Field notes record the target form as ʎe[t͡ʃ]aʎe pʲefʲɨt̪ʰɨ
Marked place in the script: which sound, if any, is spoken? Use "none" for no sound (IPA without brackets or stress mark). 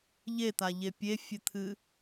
t̪